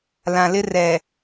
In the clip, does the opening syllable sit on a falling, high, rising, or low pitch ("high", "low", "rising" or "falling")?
low